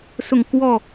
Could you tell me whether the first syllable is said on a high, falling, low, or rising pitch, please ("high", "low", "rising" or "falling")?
falling